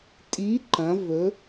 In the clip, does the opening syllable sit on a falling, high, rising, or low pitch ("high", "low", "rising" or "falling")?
rising